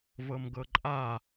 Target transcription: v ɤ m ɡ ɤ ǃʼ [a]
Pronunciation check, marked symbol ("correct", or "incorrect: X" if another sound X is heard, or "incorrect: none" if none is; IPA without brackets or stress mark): correct